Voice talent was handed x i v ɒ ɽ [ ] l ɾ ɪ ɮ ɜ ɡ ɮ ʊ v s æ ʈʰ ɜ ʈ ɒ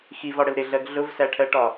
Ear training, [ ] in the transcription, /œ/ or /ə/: ə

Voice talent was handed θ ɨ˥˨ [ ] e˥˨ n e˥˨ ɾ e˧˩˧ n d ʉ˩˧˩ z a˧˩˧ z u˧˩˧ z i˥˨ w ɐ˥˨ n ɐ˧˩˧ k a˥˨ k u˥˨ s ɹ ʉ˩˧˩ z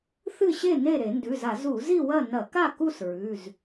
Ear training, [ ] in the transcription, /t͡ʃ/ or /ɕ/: ɕ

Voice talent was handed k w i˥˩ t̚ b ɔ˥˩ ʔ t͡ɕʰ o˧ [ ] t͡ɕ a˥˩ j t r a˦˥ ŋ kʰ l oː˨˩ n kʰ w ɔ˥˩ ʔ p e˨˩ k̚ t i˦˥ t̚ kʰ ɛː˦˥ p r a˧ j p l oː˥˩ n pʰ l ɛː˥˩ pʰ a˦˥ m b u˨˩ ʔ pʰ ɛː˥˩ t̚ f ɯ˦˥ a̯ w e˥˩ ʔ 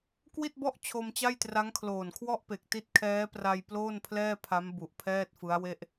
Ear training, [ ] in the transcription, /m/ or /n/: m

